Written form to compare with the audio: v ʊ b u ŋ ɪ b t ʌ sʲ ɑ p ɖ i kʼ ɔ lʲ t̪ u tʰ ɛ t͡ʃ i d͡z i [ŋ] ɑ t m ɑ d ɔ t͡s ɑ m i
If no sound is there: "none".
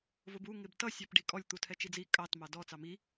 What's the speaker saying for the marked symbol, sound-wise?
kʼ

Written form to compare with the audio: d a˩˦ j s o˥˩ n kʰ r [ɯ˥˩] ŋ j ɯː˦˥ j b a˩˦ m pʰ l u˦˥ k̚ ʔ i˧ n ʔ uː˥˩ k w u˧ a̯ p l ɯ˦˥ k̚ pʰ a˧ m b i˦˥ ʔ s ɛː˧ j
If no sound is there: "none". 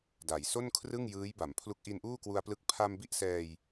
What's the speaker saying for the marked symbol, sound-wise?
ɯ˥˩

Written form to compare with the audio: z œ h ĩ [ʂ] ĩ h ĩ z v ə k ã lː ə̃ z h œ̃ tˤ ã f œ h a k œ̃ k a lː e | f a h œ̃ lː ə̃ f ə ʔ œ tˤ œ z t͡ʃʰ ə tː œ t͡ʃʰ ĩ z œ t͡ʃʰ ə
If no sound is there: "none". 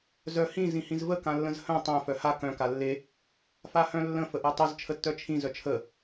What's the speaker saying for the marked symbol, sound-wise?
z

